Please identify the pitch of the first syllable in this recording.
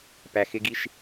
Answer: low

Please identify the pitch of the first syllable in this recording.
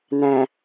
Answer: low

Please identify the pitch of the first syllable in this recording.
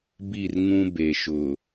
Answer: falling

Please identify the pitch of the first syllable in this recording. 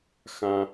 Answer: low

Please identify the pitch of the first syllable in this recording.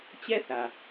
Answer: high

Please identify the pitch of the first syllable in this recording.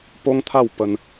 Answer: high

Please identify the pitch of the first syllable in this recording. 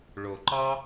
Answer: low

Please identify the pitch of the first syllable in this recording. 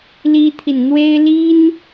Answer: high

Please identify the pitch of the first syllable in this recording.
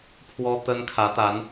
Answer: high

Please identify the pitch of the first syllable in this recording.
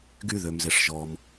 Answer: high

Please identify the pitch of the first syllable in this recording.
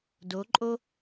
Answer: rising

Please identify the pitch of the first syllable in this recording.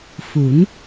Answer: rising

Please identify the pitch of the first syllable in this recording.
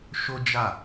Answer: high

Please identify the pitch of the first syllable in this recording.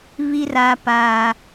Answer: low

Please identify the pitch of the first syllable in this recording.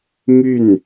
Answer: falling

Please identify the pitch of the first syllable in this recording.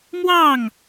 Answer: falling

